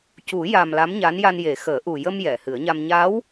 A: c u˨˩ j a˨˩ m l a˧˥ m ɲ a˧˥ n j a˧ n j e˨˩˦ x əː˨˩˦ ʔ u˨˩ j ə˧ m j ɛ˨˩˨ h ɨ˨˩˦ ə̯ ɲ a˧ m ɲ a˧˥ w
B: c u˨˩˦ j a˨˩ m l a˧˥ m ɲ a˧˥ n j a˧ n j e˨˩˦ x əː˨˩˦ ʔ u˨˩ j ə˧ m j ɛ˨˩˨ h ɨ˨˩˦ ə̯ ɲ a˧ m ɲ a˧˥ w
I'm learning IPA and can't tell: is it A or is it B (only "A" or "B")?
B